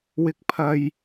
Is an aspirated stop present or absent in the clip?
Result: present